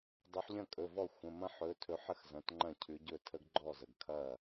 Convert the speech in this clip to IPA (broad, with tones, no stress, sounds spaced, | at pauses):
dˤ ɵ˨˦ ħ ʎ ɐ̃˥˩ kʼ ɵ˩˧˩ v ɔ˥˩ xʷ ə̃˩˧˩ m ɐ̃˦ ħ ɵ˨˦ tʰ ɵ˨˦ ħ ə˦ x z ɐ̃˩˧˩ t ŋ͡ǃ ɐ̃˥˩ cʰ ʉ˨˦ ɟ ɵ˥˩ tʰ ə˦ ɡ ɡ͡ǃ ɔ˥˩ z ə˩ ɡ kʰ ɐ˥˩